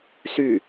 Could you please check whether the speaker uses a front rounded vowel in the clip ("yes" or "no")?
yes